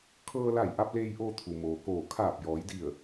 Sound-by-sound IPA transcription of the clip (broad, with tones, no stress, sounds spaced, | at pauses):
kʰ ɤː˧ l a˧˩ j ʔ a˧ p̚ l eː˧ j ʔ oː˧ t̪ʰ u˩ m oː˩ k oː˧˩ kʰ aː˧˩ p̚ j ɔː˩˧ j d i˧˩ ə̯